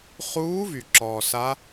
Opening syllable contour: rising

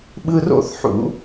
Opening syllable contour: low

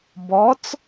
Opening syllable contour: rising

